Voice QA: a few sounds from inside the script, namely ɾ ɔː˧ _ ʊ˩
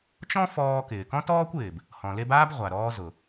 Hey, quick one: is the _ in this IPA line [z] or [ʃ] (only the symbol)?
z